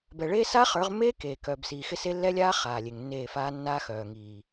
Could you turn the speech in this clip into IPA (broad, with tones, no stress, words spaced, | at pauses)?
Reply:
bɛ˨ɭeː˦ sa˦χə˞˨˦ʁmːeː˦ keː˨ kœː˨bsiː˨xɪ˦se˦ lːɛ˦lʲaː˦ χaː˨lʲe˨ŋnːeː˦˨faː˦ nːaː˦xœː˨ŋiː˨